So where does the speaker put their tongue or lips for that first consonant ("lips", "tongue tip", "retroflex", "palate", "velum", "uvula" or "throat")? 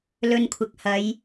tongue tip